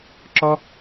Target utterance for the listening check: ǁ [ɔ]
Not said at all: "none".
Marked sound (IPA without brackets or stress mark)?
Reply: ɔ